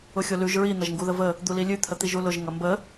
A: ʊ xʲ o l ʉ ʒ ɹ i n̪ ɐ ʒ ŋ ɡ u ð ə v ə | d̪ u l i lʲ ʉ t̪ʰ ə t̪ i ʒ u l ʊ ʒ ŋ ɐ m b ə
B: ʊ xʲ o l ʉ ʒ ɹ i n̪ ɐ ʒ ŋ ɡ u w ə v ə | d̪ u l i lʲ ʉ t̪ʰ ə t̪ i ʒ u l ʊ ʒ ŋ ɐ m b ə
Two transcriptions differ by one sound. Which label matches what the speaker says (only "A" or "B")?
A